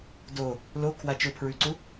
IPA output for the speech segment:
do | lokʰwa t͡ʃʊpʰɹʉǀu

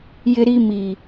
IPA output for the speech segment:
jɪ˦ɾi˦ mi˨

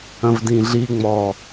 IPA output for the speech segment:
ə̃vdĩɮi ŋ͡mɔ

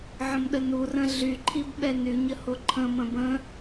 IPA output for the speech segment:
ʕə̃mɗənurə̃ ɮyǃʰib ɓɛnyɲə hoǃʰə̃mə̃ bə̃

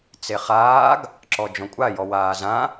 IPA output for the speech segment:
t͡seχaːɡ | ǁɔd͡ʒɔ̃kʷʼa jɔwaːzã

